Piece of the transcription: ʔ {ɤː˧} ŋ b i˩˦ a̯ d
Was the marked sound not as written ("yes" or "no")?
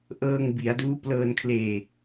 no